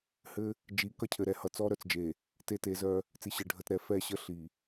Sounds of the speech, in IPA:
h ɘ˦ | d͡ʒ i˨˦ k ʌ˦ cʰ ɘ˨ ɾ ɛ˦ h ʌ˨ t͡s ɔ˦ ɾ œ˨ t͡s d͡ʒ e˨ | t e˦ t e˨˦ z œ˦ | t͡s i˨ ɕ ɘ˨ ɖʱ ə˨ t ɾ ɛ˨ f ɛ˦˨ ɕ ə˦ ɬ i˨

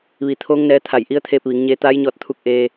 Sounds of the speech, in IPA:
ʋ i˩˧ t̪ʰ oː˧˥ ŋ n ɛː˧ t̪ʰ a˧˩ j ʔ i˧˥ ə̯ t̪ʰ eː˧ p̚ ʋ i˩˧ ŋ ɲ eː˧ t̪ aː˧˥ j ɲ ɔː˧ t̚ t̪ʰ u˧ k̚ ʔ eː˧

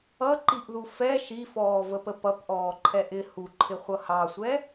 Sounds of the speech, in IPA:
ʌ ǃ i ʔ ð u f ɛ ʃ i f ɔː v ə p ə p ʌ p ʔ ɔː ǃʰ ɛ ʔ ɪ h u ǃʰ ɪ χʷ ʌ h ɑ sʷ ɛ

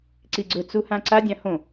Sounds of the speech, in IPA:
ǀ i ɡ͡ǀ ɵ t͡s u h ã ǀ a dʲ ã h õ

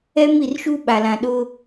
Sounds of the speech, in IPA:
ɛ˦ m i˨ r ʃ u˦ ɓ a˨ l ã˨ ɗ ʊ˦

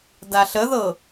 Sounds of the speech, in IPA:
d a ɬ ə ð ɤ

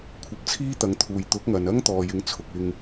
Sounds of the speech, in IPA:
kʷʰ ɐ˧ p̚ t͡sʰ iː˥ t̪ ɐ˨˧ ŋ t̪ʰ uː˨ j t̪ ʊ˨˥ k̚ ŋ ɐ˨ n ɐ˥ ŋ t̪ ɔː˨ j ɪ˨˧ ŋ t͡sʰ ʊ˨ k̚ ɪ˧ ŋ

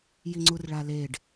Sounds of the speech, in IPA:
j i ŋ͡ǀ u r ɭ a l e ɖ

